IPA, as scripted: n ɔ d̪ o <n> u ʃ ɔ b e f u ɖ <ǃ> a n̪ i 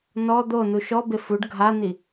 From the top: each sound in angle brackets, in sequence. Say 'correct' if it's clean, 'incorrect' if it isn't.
correct, incorrect

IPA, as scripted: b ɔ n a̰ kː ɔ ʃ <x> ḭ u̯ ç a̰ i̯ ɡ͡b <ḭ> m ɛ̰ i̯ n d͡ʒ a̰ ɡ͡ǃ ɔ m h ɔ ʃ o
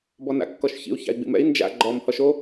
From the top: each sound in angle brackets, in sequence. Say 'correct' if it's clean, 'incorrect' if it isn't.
incorrect, correct

